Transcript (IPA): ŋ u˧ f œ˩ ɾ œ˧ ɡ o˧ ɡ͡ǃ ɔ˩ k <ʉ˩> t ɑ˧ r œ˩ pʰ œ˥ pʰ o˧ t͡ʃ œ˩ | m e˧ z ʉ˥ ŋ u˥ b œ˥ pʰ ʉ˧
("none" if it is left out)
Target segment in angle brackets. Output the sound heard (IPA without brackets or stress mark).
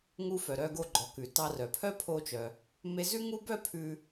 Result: ʉ˩